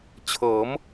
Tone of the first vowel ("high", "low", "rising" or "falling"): rising